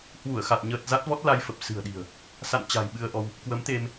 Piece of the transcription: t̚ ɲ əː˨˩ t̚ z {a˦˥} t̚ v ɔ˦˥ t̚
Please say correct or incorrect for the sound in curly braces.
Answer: correct